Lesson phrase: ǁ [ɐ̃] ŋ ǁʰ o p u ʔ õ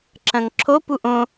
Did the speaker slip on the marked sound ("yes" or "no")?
no